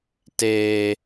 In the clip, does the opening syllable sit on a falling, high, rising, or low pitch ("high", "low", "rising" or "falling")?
high